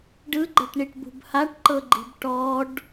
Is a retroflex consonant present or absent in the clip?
present